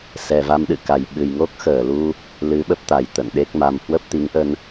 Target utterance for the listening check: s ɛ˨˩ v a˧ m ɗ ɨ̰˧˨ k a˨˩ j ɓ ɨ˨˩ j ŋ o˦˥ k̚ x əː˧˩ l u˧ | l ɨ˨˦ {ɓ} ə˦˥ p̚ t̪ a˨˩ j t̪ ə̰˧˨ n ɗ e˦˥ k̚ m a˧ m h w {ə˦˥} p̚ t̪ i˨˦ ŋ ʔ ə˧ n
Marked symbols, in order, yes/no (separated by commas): yes, yes